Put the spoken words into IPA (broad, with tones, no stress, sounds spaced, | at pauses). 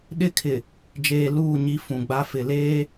ɗ ɪ˦ kʰ ɪ˨ | d͡ʒ eː˨ l uː˦˨ ɲ i˦ f ũ˨ ɡ͡b a˦ f ɪ˨ l eː˦